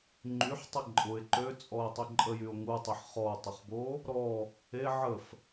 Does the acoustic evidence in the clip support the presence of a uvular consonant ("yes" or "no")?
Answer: yes